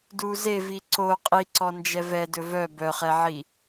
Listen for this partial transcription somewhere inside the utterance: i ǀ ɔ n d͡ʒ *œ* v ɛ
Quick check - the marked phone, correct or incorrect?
incorrect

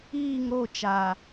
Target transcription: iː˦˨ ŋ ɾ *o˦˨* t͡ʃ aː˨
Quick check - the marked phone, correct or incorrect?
correct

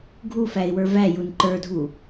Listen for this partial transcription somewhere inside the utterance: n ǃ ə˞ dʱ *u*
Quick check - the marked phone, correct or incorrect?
correct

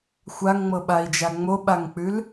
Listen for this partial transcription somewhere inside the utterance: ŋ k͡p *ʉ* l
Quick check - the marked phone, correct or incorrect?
correct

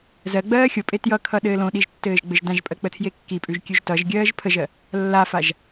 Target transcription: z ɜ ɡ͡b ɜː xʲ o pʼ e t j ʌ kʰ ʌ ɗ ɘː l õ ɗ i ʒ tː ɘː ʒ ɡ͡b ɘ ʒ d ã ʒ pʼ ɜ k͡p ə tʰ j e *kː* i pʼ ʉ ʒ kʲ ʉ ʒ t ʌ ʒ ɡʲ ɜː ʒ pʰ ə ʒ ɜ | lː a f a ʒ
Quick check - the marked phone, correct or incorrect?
correct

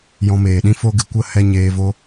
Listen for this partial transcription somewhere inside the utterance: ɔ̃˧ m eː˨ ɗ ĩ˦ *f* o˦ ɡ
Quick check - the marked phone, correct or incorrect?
correct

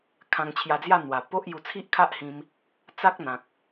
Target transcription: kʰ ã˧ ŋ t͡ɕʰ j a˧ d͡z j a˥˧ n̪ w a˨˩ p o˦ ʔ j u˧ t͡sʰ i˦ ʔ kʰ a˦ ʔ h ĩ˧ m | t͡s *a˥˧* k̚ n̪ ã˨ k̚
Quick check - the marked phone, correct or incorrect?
incorrect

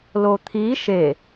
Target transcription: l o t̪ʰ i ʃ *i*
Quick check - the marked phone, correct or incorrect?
incorrect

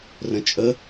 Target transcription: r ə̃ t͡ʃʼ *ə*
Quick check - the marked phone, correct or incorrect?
correct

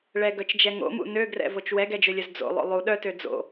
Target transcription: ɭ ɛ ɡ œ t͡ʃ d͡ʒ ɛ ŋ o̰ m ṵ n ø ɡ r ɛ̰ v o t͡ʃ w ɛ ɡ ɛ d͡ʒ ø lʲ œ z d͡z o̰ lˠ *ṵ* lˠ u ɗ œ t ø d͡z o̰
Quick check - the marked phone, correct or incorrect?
incorrect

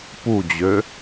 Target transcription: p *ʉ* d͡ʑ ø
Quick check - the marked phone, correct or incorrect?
incorrect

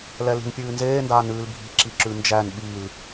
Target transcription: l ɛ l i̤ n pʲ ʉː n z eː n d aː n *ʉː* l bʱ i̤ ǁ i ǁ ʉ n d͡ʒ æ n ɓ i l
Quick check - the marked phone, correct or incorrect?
correct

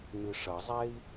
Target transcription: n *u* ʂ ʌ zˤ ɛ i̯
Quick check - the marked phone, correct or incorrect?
incorrect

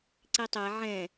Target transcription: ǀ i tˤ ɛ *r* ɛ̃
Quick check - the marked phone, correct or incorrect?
incorrect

